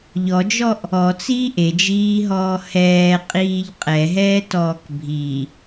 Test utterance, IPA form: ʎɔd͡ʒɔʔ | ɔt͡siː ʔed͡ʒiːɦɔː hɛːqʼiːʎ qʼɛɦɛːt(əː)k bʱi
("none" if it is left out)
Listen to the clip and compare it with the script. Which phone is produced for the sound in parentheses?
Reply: ɔː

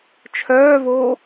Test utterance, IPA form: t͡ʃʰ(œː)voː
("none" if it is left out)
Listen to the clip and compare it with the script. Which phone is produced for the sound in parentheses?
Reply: œː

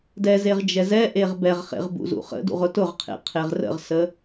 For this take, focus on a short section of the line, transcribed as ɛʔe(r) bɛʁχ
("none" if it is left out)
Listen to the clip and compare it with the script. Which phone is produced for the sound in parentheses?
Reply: ʁ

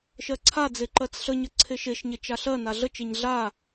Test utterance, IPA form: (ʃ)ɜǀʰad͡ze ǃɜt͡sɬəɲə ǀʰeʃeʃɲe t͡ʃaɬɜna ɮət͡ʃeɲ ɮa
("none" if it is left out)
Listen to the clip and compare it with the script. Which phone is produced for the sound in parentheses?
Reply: ʃ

